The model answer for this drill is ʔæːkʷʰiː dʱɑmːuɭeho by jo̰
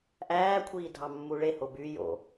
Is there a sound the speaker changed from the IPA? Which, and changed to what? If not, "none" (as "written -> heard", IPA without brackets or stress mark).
none